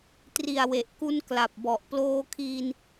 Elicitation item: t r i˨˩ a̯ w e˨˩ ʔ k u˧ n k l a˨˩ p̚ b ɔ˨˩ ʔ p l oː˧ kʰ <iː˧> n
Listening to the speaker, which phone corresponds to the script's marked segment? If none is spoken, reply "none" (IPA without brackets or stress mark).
iː˧